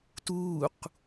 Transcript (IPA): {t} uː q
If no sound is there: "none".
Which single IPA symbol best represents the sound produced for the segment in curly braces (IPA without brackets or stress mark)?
t